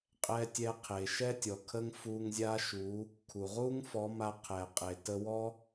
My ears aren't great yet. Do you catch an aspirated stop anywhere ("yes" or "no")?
yes